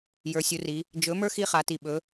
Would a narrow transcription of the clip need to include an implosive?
yes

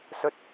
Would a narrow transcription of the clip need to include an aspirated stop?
no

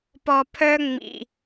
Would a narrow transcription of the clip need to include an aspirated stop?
yes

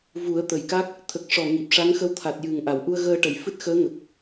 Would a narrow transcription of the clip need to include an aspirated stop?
yes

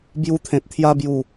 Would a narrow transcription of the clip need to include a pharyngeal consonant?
no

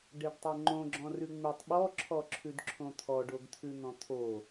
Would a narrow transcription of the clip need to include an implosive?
yes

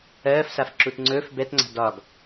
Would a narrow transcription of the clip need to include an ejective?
no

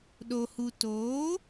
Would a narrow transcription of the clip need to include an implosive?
yes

